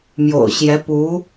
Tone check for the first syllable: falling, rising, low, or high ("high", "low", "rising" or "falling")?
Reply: low